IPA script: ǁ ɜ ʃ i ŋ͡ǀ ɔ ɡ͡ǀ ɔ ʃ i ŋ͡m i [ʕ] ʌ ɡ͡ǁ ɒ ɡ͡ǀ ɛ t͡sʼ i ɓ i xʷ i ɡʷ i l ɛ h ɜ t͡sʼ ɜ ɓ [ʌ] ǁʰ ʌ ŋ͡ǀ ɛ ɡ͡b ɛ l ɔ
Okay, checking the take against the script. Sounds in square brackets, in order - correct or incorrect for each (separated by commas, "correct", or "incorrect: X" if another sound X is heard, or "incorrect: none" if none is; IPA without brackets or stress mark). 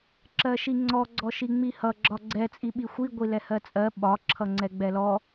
incorrect: h, incorrect: ɒ